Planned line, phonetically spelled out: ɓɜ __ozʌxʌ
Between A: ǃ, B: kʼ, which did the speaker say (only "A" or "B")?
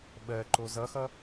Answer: A